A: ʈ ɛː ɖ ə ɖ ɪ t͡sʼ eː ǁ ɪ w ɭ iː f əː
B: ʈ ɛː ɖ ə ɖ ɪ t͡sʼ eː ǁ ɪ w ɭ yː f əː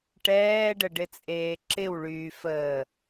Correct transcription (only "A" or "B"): B